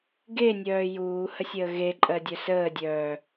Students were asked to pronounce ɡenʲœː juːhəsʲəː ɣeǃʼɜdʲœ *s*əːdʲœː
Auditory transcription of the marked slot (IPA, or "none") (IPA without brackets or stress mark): s